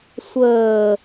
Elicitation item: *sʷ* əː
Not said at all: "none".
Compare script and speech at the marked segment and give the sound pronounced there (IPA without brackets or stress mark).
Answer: sʷ